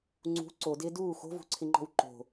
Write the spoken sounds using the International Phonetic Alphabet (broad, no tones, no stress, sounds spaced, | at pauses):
ŋ͡ǀ ṳ ǀ o d ɪː d uː x o̤ v ṳ ǀʰ ɪ ŋ͡ǃ ɔ̤ w ǃ o̤